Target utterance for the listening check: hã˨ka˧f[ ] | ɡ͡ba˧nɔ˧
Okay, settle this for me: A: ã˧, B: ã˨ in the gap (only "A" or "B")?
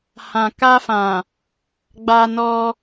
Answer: B